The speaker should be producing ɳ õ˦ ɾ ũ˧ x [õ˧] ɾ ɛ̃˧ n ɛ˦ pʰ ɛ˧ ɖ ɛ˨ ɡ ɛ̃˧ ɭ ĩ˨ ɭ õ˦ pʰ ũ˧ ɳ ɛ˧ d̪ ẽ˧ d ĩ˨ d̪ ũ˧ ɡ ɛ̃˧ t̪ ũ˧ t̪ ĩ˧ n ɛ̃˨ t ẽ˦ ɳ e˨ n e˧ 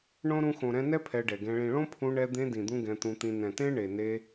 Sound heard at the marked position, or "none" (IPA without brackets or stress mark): õ˨